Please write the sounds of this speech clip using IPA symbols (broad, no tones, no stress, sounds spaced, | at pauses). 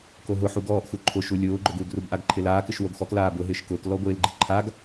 k o ɦ ʊ ħ u ɡ ɔː ʔ x u ǃʰ ʊ ʃ u lʲ ʊː ɡ͡ǃ ʊ ɡ u ɡ r u b ʔ a ɡ ǃʰ ɪ l aː k ɪ ʃ w o ɡ x ɔ k l aː b ʊ ɦ ɪː ʃ k ʊː k l ɔ ɡʷ ɪː l ɡ͡ǃ i ǃʰ a ɡ